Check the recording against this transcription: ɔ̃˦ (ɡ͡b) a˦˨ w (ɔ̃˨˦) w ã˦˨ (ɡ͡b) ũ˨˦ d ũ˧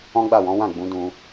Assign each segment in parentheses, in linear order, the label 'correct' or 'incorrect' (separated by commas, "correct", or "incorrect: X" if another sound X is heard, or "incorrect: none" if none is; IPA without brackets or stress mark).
correct, correct, correct